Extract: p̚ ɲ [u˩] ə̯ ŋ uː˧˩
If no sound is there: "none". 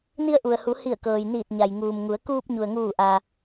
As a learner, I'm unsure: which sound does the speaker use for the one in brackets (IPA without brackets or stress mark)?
u˩